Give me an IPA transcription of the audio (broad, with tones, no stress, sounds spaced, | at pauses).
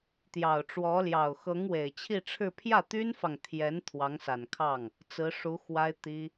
t̪ j ɑ˨˩ ʊ̯ ʈ͡ʂ w ɔ˧˥ l j ɑ˨˩ ʊ̯ x ɤ˧˥ ŋ w e˨˩ ɪ̯ t͡ɕʰ i˥˧ ʈ͡ʂʰ ɻ̩˥˧ pʰ j ä˥˩ t̪ y˥ n f ɑ˨ ŋ t̪ʰ j ɛ˧˥ n t̪ʰ w ɑ˧˥ ŋ s a˨˩ n kʰ ɑ˥˩ ŋ | t͡s ɹ̩˧˥ ʂ u˧˥ x w a˥ ɪ̯ t̪ i˥